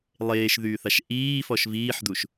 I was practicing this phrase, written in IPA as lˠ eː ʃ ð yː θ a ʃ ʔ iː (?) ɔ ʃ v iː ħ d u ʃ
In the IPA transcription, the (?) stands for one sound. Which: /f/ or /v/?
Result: f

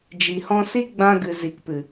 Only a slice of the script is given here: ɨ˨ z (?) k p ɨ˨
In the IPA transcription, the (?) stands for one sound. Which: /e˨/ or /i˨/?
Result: i˨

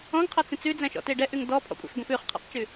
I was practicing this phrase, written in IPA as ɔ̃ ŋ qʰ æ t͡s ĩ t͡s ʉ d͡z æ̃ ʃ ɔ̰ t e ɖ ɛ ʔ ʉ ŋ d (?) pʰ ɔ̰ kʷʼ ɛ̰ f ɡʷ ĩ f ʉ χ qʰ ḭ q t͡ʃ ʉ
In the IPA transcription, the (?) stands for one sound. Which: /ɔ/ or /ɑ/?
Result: ɔ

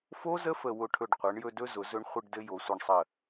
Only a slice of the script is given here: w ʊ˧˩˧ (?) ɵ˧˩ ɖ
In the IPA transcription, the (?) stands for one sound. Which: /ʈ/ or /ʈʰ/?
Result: ʈʰ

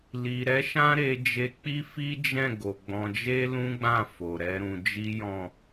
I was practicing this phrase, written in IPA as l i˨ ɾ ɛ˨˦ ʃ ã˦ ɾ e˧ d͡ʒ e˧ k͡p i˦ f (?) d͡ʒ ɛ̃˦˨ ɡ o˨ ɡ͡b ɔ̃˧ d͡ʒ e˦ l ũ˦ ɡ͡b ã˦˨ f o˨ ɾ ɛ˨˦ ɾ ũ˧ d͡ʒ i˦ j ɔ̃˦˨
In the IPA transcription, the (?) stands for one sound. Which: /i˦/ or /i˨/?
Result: i˦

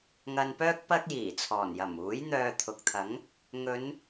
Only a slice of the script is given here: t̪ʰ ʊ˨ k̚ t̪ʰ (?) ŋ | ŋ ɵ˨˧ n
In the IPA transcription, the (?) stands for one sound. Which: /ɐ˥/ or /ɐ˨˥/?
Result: ɐ˨˥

